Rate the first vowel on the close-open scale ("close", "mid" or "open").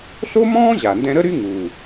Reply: mid